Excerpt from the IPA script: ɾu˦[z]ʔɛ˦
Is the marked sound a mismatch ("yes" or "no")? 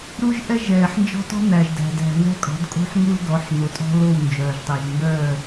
yes